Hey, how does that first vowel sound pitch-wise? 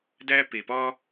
high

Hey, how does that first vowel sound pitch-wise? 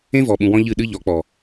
high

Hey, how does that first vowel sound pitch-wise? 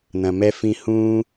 low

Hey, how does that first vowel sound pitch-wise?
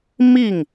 falling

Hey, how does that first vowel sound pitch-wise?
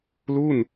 falling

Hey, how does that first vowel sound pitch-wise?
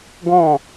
falling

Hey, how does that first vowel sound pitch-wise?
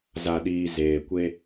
low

